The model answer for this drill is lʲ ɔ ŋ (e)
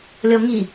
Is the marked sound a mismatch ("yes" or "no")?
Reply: yes